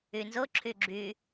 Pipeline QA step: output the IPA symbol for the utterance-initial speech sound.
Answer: y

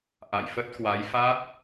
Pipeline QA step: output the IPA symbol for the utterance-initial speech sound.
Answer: ʔ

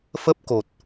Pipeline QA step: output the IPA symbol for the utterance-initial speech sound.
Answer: f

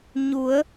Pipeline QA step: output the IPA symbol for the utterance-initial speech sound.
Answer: ɲ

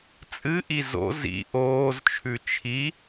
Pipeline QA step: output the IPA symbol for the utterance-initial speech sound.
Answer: t͡sʼ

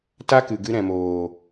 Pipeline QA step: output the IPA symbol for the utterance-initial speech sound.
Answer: t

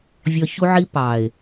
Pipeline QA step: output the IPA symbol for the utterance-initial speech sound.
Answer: vʲ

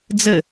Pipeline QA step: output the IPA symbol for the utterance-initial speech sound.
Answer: d͡z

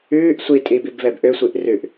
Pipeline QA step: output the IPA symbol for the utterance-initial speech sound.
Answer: ʉː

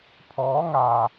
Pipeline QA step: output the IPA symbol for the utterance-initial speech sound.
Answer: pʰ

